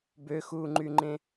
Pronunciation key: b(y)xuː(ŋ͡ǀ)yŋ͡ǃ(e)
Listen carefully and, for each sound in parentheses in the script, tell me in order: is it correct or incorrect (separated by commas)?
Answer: incorrect, incorrect, incorrect